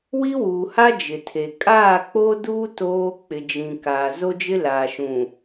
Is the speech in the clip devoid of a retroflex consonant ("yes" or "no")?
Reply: yes